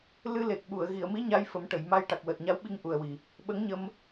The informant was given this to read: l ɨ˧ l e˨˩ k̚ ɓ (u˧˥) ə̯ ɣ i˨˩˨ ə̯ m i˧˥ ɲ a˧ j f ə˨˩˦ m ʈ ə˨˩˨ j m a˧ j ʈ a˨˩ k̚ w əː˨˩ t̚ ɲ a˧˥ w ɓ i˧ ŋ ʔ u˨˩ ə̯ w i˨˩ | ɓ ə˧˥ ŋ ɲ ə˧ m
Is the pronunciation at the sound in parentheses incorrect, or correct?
incorrect